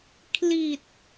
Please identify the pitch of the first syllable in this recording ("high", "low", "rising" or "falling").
low